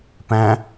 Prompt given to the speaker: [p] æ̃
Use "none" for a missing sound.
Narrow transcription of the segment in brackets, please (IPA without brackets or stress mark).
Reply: p